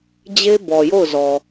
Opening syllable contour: high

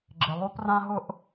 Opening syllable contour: low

